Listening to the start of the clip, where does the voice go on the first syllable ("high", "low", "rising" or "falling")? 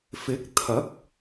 rising